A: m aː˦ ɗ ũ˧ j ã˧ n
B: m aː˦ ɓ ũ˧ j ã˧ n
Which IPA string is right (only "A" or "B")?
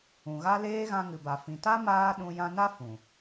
A